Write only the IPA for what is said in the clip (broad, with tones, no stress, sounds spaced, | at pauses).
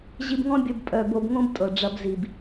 ʑ i˧ b ŋ ɔ̃˦ bʲ ɤ˧ b pʼ œ˨ b o˧ b ŋ õ˦ b tʼ ɤ˨ ɖ͡ʐ ɐ˧ b z i˨ b